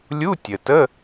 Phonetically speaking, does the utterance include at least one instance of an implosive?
no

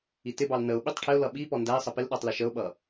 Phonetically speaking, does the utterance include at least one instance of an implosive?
yes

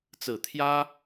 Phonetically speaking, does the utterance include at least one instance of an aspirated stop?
yes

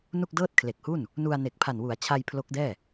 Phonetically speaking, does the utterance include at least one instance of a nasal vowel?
no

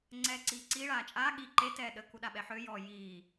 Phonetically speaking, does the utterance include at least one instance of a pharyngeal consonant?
yes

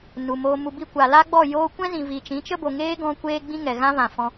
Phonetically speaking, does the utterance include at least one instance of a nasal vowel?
yes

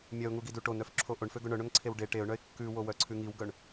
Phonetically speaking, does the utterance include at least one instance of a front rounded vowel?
yes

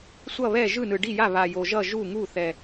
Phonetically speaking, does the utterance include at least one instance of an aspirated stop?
no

